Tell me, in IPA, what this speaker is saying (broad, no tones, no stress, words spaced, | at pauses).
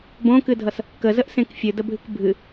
bõkɨdʱʌs | kəzəʔsẽk fʲɨdəbʱɨk bʱɨ